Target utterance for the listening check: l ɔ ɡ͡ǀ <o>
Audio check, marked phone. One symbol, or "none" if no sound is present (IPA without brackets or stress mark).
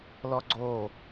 o